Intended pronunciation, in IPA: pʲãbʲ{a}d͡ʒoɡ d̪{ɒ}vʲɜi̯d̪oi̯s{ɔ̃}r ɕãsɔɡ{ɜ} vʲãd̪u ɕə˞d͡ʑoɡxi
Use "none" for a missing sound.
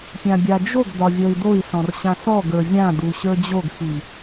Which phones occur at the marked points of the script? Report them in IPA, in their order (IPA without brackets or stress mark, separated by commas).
a, ɒ, ɔ̃, ə˞